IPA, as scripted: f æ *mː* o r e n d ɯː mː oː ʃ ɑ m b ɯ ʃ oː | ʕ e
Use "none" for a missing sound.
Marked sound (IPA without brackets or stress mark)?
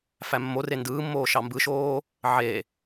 mː